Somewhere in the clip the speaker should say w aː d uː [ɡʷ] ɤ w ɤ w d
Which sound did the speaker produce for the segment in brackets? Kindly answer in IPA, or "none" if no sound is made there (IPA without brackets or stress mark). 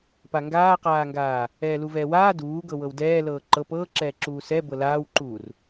ɡ